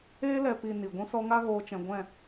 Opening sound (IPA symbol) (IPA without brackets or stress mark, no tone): eː